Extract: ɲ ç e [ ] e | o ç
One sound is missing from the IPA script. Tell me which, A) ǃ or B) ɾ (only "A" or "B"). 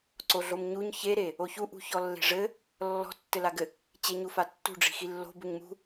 B